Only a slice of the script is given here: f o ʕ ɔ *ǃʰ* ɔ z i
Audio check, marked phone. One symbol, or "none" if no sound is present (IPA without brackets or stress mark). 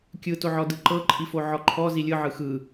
ǃʰ